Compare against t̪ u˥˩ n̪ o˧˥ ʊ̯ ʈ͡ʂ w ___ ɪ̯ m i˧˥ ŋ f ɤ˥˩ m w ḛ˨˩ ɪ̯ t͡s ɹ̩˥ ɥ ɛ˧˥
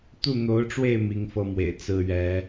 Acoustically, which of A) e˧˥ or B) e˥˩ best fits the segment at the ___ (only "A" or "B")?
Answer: B